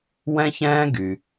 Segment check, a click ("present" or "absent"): absent